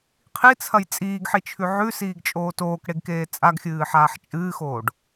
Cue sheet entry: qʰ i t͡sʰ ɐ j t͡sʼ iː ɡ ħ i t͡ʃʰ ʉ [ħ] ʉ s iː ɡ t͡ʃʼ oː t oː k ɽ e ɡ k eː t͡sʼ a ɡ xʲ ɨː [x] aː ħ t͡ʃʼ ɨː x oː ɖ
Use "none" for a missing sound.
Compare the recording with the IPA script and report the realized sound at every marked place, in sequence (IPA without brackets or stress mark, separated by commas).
ʕ, ħ